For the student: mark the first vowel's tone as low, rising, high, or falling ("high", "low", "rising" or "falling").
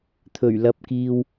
low